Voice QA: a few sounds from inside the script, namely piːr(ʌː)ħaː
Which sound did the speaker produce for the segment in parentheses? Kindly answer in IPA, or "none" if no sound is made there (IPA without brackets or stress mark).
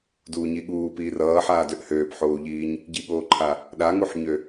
ʌː